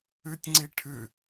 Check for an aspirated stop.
present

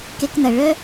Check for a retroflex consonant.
present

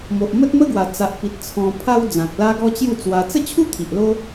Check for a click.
absent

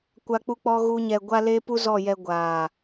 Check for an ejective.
absent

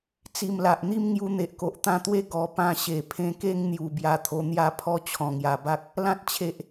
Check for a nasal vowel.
present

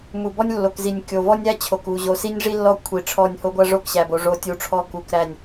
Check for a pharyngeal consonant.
absent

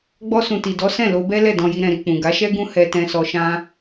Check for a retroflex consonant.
absent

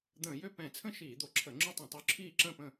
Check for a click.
present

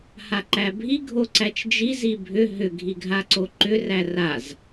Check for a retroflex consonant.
absent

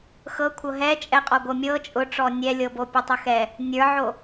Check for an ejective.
present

